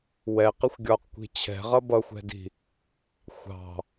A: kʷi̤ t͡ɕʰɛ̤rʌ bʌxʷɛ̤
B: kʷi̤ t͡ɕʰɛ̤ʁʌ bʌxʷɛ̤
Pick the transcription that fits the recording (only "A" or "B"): B